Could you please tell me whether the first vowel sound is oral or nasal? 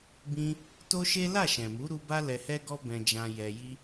nasal